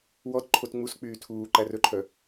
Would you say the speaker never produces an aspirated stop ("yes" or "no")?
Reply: no